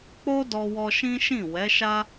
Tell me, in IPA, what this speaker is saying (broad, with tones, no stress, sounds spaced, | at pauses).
k͡p o˦ d ɔ˧ w ɔ˧ ʃ ĩ˦ ʃ ĩ˦˨ w ɛ˨˦ ʃ a˦